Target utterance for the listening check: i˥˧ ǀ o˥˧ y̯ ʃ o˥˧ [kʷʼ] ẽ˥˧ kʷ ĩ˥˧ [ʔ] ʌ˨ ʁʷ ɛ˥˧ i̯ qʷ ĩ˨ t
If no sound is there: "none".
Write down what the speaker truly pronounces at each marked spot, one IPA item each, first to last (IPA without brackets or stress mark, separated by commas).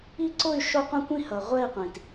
qʷ, h